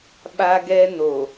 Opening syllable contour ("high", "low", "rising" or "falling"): high